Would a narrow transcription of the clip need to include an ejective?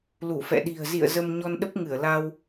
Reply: no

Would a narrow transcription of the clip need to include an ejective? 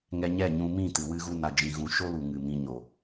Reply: no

